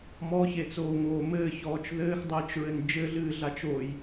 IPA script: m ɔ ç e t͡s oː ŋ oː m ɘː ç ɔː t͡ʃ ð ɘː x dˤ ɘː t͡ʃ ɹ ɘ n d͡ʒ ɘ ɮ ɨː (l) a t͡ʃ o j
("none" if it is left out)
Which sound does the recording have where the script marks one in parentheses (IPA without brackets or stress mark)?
ɮ